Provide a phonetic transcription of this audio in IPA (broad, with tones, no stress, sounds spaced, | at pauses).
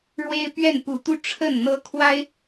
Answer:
ɻ w e˦ ɪ̯ p ɥ ɛ˥˨ n p u˨˦ t̪ u˦ ʈ͡ʂʰ ə˥˨ n n̪ ɤ˦ kʰ w a˦ ɪ̯